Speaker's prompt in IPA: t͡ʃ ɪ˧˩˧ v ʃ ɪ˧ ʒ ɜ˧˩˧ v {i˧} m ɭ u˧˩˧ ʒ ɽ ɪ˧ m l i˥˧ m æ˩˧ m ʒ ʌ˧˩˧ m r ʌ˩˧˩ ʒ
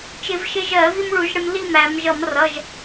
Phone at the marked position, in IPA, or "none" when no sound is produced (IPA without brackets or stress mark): i˧